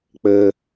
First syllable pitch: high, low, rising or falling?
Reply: high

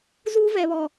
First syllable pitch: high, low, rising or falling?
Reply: high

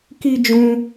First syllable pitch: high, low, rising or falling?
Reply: high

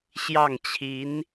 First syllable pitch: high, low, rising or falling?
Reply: falling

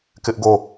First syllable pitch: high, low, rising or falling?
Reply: high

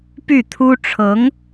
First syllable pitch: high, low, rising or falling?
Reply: falling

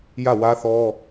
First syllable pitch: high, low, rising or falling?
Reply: falling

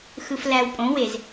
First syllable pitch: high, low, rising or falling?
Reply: low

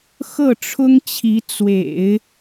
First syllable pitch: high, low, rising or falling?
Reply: falling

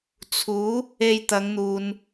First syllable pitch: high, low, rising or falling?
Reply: rising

